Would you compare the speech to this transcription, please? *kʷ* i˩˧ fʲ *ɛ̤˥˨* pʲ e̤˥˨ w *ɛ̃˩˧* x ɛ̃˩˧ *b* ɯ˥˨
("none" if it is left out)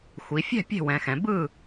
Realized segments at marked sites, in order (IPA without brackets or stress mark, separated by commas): xʷ, ɛ̤˥˨, ɛ̃˩˧, b